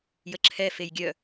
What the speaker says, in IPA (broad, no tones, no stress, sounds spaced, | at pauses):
j ə ǁʰ ɛ f e j ɡʲ œ